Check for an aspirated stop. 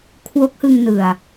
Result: present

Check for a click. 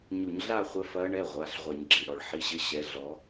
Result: present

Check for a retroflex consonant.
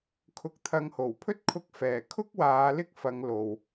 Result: absent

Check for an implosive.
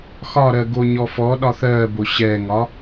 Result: present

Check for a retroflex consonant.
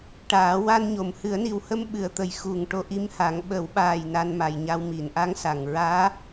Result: present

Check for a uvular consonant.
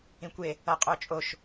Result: present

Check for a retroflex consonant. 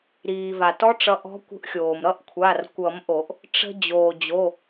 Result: present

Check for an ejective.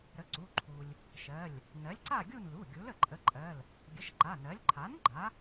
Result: present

